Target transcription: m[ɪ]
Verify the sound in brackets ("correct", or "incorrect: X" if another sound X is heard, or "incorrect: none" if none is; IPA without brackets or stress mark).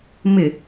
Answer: correct